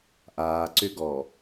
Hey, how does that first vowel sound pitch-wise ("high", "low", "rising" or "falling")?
low